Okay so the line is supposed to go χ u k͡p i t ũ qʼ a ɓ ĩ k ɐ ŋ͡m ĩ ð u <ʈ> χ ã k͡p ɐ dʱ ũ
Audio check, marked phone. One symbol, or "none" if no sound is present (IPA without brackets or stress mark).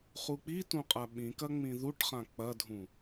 ʈ